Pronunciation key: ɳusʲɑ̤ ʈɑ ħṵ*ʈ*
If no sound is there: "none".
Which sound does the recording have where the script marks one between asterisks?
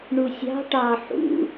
none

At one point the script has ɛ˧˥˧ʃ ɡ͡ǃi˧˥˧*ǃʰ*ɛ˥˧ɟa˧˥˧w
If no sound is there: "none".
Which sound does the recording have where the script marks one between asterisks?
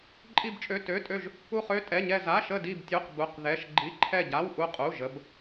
ǃʰ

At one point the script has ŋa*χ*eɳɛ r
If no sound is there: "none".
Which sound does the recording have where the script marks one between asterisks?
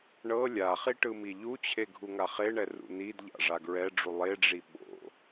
χ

